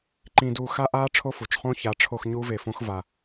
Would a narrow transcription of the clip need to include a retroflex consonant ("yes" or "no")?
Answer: yes